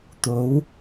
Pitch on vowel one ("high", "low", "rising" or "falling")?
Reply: rising